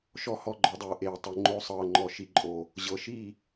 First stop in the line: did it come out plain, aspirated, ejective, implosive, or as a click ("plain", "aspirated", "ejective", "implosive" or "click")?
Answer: click